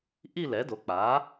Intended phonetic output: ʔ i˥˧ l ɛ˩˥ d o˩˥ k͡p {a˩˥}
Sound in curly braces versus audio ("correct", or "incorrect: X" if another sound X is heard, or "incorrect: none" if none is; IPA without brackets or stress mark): correct